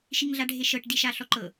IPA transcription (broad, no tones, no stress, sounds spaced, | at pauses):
ʃ i ŋ ɮ a ɖʱ e ʃ ɤ ʈ d i ʃ a ɬ ɔ ǃ ɤ